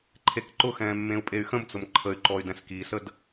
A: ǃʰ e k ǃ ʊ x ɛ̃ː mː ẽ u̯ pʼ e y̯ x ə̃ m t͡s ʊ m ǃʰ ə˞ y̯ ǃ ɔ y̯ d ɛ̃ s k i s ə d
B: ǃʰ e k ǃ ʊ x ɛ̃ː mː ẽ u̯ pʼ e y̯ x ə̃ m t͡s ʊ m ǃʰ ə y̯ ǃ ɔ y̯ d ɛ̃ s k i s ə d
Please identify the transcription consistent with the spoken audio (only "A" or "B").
B